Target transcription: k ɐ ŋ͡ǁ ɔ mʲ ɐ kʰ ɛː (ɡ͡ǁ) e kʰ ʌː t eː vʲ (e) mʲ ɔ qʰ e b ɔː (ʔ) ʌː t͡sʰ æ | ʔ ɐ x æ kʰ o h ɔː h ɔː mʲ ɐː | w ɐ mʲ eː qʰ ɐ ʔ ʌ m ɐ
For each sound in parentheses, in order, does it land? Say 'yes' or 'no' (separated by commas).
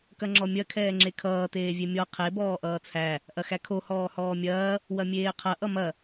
no, yes, yes